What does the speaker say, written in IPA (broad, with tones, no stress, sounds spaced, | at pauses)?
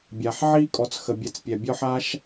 bʲ a˨ ħ ʕ i˥ kʼ ɔ˨ t͡s x ə˨ bʲ ɛ˨ t͡s pʲ ɛ˩ bʲ ɔ˦ ħ a˥ ʃ